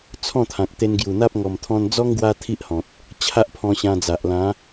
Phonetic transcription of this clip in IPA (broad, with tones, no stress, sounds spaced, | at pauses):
t͡sʰ ɔ̃˥˧ t̪ʰ ã˨ k̚ t̪ e˧ n ɡ j u˨˩ n̪ a˦ p̚ ŋ ɔ˨˩ m t̪ʰ ɔ̃˧ n d͡z ɔ˦ ŋ ɡ w a˦ t̪ʰ i˦ ʔ h ɔ̃˨ t̚ | t͡ɕʰ a˦ ʔ pʰ ɔ̃˧ ɕ ã˧ d͡z a˨ ʔ l ã˨˦